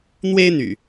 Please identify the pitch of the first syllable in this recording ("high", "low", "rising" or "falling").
high